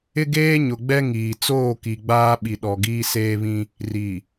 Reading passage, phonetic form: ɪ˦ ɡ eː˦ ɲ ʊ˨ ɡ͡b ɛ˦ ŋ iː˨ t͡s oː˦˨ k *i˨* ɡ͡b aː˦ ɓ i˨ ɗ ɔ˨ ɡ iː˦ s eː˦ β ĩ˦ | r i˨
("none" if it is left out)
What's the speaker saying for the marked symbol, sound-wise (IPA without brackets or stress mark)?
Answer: i˨